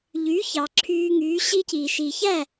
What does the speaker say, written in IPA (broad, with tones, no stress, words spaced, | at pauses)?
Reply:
ʎy˩˥çɑ˩ ǁʰyː˧ŋyː˩˥ɕi˥ciː˩ ʃi˩çæ˥˩